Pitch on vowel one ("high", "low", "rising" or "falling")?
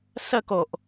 falling